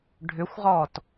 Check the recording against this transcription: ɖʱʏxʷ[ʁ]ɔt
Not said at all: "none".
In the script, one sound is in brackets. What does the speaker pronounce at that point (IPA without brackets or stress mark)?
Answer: ʁ